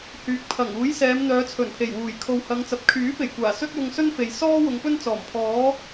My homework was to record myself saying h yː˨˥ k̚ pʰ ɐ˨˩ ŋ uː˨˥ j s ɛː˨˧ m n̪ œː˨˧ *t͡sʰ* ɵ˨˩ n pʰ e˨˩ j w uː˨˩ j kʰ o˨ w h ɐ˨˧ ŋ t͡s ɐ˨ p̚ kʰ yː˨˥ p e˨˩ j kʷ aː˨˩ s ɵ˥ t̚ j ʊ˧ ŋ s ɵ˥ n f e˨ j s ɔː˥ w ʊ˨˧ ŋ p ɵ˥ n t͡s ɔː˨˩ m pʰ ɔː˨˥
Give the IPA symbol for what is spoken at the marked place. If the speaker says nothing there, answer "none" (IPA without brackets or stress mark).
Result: t͡sʰ